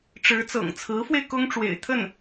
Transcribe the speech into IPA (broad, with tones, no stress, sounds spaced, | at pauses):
ʈ͡ʂ ɻ̩˧˥ t͡s ɤ̰˨˩ ŋ t͡sʰ ɹ̩˧˥ f w e˧ ɪ̯ k ʊ˥ ŋ ʈ͡ʂ w ḛ˨˩ ɪ̯ t̪ʰ ə˥˩ n